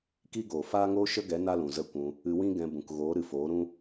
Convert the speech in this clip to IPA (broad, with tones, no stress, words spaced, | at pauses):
ki˦ɡoː˨ faː˦ŋoː˦ʃə˦ɡɛ˨˦ na˦lũ˨zə˦˨kʷũ˧ | ɨ˧wĩ˦ɡɛ̃˧bũ˨k ɣoː˨˦ɾɨ˨foː˨˦ɾũ˦